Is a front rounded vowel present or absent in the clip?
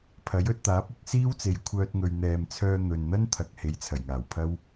present